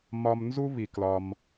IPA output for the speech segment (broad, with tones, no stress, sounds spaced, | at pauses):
m ɒ˧ m n z u˥ β i˩ k l ɒ˩ m